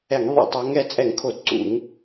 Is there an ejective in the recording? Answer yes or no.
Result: yes